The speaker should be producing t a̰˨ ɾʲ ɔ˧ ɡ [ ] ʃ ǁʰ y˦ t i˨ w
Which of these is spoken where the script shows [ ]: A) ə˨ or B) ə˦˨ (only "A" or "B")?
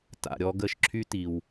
B